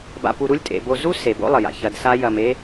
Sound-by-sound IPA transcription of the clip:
ba̰˧pu˧ ɾu˥lʲtʼḛ˩˧ bo˧ zu˥ se˩˧bo̰˥lˠə˩ja̰˩ çɐ˧dsa˥ jɐ˧me˥

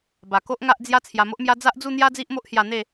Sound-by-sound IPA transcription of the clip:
ba˨˩ko˦ʔ ŋa˦ʔd͡zja˦ t͡sʰja˧mo˦ʔmja˦ d͡za˦ʔd͡zu˥˧n̪ja˦ d͡zi˦ʔmo˦ʔhja˧ n̪e˥˧

